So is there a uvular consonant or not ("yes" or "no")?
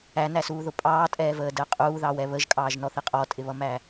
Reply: yes